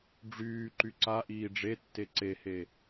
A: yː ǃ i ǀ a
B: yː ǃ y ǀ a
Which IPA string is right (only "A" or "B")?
B